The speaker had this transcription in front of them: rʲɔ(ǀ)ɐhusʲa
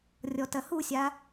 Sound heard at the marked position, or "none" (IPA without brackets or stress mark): t